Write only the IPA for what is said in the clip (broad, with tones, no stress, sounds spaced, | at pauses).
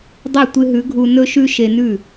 dˤ ɐ˥˩ tʷ ɨ˧ ɦ ʉ˩˥ ɡʱ u˧ n ɵ˥ ʃ ʉ˥ ʃ e˧ n ʉ˥˩